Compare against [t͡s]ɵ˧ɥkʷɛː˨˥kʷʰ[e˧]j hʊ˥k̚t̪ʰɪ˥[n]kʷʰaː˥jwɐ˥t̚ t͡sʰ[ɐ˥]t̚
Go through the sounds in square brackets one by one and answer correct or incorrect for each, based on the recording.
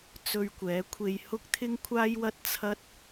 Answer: correct, correct, incorrect: ŋ, correct

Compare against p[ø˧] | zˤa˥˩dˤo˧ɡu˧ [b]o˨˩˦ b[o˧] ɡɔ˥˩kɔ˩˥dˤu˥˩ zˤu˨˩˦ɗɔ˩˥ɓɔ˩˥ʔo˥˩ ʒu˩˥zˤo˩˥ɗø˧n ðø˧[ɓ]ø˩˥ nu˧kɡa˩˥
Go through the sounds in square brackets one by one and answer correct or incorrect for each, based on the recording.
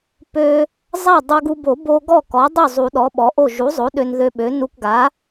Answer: correct, correct, correct, correct

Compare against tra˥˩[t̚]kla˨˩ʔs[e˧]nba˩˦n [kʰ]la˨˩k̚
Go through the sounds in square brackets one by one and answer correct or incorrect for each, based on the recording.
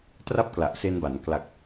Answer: incorrect: p̚, correct, incorrect: k

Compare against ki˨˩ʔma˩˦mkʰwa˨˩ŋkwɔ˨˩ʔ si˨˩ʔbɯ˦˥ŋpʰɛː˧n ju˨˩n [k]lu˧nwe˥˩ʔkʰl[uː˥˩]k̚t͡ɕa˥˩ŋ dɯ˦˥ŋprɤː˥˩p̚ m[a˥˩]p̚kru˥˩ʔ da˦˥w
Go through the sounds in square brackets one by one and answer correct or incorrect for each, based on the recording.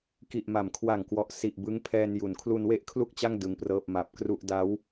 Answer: incorrect: kʰ, incorrect: u˥˩, incorrect: a˨˩

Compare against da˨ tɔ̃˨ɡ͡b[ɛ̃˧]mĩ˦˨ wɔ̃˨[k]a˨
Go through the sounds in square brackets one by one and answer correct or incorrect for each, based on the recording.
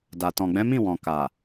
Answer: incorrect: ɛ̃˨˦, correct

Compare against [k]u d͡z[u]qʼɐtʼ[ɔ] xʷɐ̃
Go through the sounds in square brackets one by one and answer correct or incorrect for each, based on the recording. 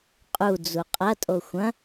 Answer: incorrect: qʼ, correct, incorrect: o

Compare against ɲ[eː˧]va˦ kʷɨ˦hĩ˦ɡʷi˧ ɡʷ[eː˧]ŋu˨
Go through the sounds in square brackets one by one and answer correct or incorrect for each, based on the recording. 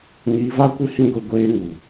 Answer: incorrect: iː˧, correct

